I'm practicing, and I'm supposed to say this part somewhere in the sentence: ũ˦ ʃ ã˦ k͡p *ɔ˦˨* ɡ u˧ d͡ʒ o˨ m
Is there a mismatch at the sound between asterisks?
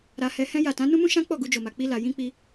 no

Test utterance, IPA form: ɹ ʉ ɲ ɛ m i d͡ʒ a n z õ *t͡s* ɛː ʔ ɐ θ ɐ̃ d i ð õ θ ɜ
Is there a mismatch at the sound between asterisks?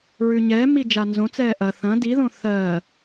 no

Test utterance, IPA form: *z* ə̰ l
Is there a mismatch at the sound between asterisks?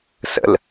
yes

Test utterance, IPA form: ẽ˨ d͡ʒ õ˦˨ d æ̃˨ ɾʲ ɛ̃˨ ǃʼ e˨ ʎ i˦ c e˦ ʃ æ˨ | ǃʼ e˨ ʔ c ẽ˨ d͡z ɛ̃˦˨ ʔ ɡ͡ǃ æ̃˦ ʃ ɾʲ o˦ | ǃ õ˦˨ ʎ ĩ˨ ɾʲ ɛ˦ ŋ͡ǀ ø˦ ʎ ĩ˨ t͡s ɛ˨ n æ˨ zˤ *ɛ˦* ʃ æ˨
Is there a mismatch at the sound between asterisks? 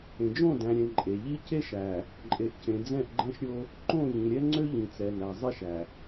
yes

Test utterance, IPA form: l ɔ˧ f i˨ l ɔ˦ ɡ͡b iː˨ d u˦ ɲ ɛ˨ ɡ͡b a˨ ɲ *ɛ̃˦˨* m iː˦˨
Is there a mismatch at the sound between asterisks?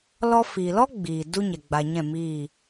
no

